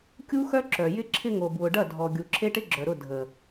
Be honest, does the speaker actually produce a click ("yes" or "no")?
yes